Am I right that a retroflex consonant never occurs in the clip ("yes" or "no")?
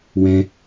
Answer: yes